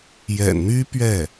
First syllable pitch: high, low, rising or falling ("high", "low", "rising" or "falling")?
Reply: low